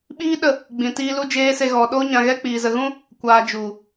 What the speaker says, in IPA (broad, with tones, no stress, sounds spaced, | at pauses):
ɓ iː˦ ɗ ə˦˨ | ɡ͡b ĩ˨ t iː˦ l u˦ d͡ʒ eː˦ s e˧ ɣ ɔ˨ ɗ o˦ ɲ ã˧ ɣ ɛ˦ k͡p iː˨ z ə˨ ɣ ũ˦ | kʷ aː˧ d͡ʒ u˨